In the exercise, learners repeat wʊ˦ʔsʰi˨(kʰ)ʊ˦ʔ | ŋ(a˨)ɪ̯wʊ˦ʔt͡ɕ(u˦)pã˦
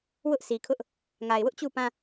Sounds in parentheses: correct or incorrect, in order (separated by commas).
correct, correct, incorrect